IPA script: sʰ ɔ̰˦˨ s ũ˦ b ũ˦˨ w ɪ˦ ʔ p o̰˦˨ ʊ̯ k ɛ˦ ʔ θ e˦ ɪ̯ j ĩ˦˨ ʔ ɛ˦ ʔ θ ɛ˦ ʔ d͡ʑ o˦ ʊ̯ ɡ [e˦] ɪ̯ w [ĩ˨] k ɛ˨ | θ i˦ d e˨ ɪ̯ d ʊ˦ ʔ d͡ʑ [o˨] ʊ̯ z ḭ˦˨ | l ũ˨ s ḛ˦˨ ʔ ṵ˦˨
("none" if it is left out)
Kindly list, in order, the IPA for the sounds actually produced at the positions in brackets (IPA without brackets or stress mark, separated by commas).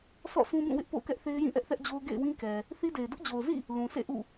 ḛ˦˨, ĩ˦, o˨